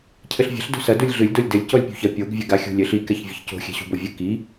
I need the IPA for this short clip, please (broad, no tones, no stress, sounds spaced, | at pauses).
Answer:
cʰ ɘ ɬ vʲ ɛ̤ ɬ d o̤ s ɐ d u lʲ ɮ ɨ lʲ d o lʲ d ɘ lʲ c ɔ lʲ pʲ ṳ ç ɐ pʲ o ɡ vʲ ɘ ɡ a xʲ ṳ lʲ ɘ ɬ i k ɛ ç vʲ ɘ ç c o̤ xʲ ɛ̤ ɕ ṳ b o vʲ ɘ k i